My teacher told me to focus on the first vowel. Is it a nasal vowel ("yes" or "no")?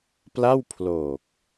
no